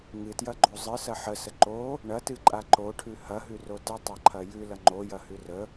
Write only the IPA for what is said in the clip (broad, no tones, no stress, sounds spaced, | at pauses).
ŋ ɨ t j ɐ ɡ͡ǃ o zˤ ɨ s ɐ ħ ə s ə ǃ o | ɳ ɐ t ɨ ǃʼ a ǃ o ʈʰ ʉ h ɐ ɦ ʉ r o t ə tˤ a ǃʰ ɐ j ʉ l ɐ ŋ͡ǃ o j ɐ h ʉ r ə